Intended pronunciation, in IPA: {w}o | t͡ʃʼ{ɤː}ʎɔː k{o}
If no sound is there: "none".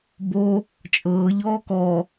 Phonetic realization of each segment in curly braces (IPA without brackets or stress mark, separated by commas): b, ɤː, ɔ